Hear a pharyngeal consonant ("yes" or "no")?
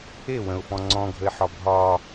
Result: yes